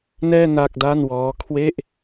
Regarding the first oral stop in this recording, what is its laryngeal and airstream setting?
plain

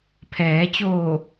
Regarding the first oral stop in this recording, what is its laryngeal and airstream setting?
aspirated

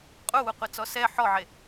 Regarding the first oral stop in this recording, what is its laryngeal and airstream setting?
ejective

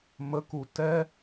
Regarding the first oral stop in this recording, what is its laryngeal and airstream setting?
plain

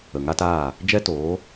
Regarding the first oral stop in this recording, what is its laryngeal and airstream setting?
plain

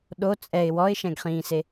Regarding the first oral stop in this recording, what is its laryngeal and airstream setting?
implosive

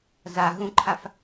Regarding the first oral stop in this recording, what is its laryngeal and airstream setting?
click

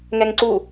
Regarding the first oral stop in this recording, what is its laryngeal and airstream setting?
click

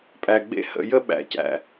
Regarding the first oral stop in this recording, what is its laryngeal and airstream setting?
ejective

